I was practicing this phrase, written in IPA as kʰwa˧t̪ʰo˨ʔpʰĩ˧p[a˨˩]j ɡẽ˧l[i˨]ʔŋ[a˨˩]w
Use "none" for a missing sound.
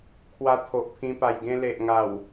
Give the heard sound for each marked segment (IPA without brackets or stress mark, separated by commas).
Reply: a˨˩, e˨, a˨˩